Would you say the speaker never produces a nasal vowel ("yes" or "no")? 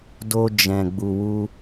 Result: no